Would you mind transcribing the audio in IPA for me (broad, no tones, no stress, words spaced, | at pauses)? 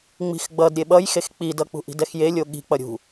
ŋ͡mi̤xɡ͡bʌd ɾʲeɓʌjxex k͡pidʌk͡pṳ ʔi̤dɛxjelʲo ɠi̤k͡pʌ ɾʲṳ